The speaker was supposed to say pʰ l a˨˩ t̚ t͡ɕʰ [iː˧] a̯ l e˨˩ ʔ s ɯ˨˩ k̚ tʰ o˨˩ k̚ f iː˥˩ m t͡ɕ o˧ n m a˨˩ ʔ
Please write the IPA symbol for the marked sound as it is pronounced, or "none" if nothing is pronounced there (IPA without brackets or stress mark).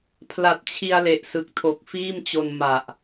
i˧